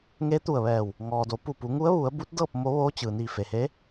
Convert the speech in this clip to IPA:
ŋe˧˥t̪u˧˩ə̯ʋɛː˧˩w | ŋɔː˩do˩˧pu˧˩pu˩˧ ŋu˧˥ə̯ʋu˩˧ə̯bu˧˥t̚dɤː˥˨p̚ mo˧˥ ʋoː˧˥ t͡ɕɯː˩ niː˧˩fe˩he˧˥

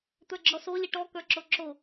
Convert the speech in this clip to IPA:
t̪ə˞ɡ͡ǁɔso lʲeʈɔkə˞ ǁoǁo

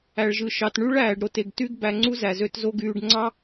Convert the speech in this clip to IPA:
æ˨ɭʒɯ˨ʃɑ˨t ɳy˦ɭ æː˨ɖɾo˨te˨ɡ ty˦ɡ bæ˧ŋ͡ǀu˦zæ˨zø˧t zo˦ɡyː˧ɖ ŋ͡ǀɑ˦

